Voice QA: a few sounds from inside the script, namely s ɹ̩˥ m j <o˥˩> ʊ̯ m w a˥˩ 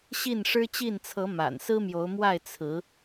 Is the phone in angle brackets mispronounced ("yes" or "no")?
yes